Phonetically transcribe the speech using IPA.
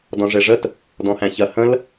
dɔ̃ʐeʐət | dɔ̃hæ̃çɐ hə̃l

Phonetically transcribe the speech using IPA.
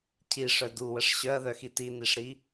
cʰiʂœ duwəʂ ɕœɐ̯ðœxi tiniʂɾi

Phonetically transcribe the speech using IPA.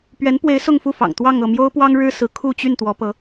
pɥɛ˧˥npwe˧˥ɪ̯ sʊ˥˧ŋ fu˥˩fɑ̰˨˩ŋ t̪wɑ˥˧ŋɤ˥˩ mjo˥ʊ̯pwɑ˥ŋ ɻɻ̩˥sɹ̩˧˥ kʰu˥˧t͡ɕy˥˩n t̪wɔ˧˥pɤ˧˥

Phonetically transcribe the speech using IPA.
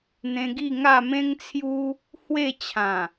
n̪ẽ˧ɡi˥˧ ŋa˥˧mẽ˦ŋt͡sʰju˦ | hwe˥˧t͡ɕʰã˨˩

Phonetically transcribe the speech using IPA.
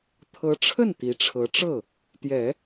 t̪ʰɤ˧˥ʈ͡ʂʰə˥˩n t̪i˧˥ʈ͡ʂʰɤ˧˥ ʈ͡ʂɤ˥˩ | t̪jɛ˨˩˦

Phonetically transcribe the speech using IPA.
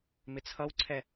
mɪt͡sʰʌwǀʰɛ

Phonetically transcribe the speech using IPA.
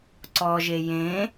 ǀɔʒe jẽ

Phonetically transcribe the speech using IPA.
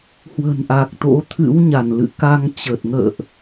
hwə̤˨˩nʔa˨˩k̚t̪o̰˧˥ t̪ʰɨ̰˧˥wɲa˧˩nlɨ̰˧˨ ka˧ŋt͡ɕə˨˩t̚ŋə̰ː˧˨ʔ

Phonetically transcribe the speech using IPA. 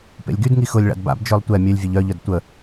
pḛlʲɡydŋi xʊlʲ ɭa̰dba̰bd͡ʒœlˠ tʷɛ mʲølʲvʲeʎ œʎœd tʷə

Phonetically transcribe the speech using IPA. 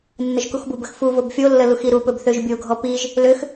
nːəʒkuxbubəx fu vobfʲolːə luxiɾupɵb θøʒbʲoɡʱɔ piʒ | løx

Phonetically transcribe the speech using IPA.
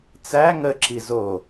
t͡sæ ŋəǁi zo

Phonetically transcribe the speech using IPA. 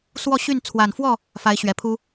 swɔ˥˨ɕy˥˨n t͡sʰwa˨˩nfwɔ˥˨ | fa˨˦ɪ̯ɕɥɛ˨˩pʰu˦

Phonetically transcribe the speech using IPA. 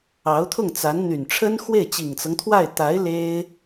ɑ˧˥ʊ̯t̪ʰʊ˥˩ŋt͡sa˧˥n n̪y˨˩nʈ͡ʂʰə˥nxwe˥˩ɪ̯ t͡ɕi˨˩ŋt͡sɤ˦ŋt̪ʰwa˥˩ɪ̯ t̪a˧˥ɪ̯ le˥ɪ̯

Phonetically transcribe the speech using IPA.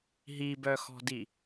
ɦibœxɔ̤di

